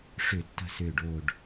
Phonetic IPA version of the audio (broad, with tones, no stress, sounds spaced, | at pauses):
ʂ ʏ˨˩˦ tː ə̤˨˩ s ʏː˨˩ ɖ o˨˩ ɖ